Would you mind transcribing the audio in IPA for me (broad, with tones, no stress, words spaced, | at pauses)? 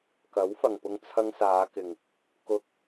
kɐ˨˥wfɐ˨ŋpʊ˧ŋ t͡sʰɐ˧ŋsaː˨˧kɪ˨ŋ | kʊ˧k̚